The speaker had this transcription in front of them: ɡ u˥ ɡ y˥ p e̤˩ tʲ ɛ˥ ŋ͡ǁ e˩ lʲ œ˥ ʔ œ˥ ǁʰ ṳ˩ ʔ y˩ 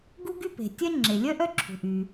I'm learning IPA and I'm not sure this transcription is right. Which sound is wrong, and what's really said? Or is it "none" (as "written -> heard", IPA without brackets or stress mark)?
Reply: none